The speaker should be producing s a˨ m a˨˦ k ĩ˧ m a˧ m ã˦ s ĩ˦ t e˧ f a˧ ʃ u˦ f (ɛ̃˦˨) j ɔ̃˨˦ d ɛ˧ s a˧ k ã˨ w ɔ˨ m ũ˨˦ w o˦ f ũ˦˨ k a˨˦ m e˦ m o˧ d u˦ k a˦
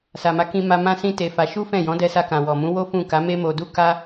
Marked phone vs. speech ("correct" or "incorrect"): correct